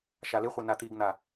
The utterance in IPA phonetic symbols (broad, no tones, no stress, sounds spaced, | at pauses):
ʃ a l ɪ χʷ e n a t̪ i ɡ n̪ a